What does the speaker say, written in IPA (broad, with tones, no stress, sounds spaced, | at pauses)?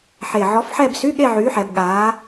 ħ e˨˩ ʕ ɔ˨˥ f ħ ɛ˥˧ b s y˧˥˧ ɠ e˥˧ ʕ yː˨˥ ħ ɛ˩˧ b ɠ aː˨˥